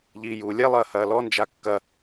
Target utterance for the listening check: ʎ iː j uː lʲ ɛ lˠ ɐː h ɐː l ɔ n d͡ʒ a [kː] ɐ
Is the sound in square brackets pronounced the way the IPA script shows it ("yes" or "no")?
yes